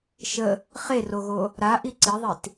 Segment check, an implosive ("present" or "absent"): absent